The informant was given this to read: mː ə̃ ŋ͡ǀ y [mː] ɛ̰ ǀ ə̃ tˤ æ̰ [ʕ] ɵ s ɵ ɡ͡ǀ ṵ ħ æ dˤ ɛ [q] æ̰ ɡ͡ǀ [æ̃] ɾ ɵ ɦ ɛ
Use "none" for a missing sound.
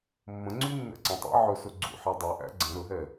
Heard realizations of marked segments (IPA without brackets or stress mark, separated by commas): nː, ʕ, ʔ, ə̃